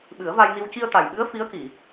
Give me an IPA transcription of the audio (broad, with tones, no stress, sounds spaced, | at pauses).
ɓ ɨ˨˩˦ ə̯ v a˧ j n i˧ w c i˧ ə̯ t̪ a˨˩ j ɓ ɨ˧˥ ə̯ f i˧˥ ə̯ k i˨˩˨